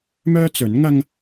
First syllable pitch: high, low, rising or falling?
high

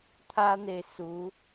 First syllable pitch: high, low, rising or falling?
high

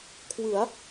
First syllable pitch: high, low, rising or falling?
rising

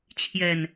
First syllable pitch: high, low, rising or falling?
low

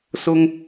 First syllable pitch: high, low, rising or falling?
high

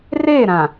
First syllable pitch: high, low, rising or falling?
falling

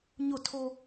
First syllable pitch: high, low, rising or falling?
falling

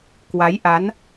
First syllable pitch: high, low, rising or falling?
rising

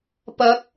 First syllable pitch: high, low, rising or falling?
rising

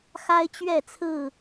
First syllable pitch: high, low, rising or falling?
high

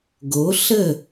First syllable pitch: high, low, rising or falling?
rising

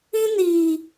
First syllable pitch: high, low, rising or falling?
high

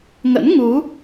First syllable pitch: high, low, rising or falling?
rising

